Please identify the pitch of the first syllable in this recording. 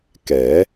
rising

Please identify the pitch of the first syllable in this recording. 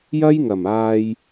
high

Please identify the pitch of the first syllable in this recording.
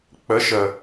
rising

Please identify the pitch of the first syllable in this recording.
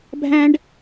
high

